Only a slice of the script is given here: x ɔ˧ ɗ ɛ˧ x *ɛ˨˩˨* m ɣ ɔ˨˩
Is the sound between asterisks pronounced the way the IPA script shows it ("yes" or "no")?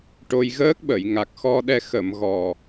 no